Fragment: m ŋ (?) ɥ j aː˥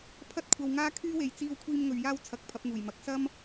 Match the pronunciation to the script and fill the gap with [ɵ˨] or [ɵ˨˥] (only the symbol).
ɵ˨